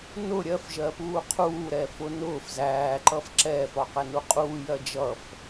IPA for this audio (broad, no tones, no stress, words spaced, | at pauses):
nʊ ɾʲɜfʒɜpuː qʰuːɾɛːfʊ nʊːf zæːǃʌf ǁɛːfɒqɛnu qʼuːjɜ d͡ʒʌf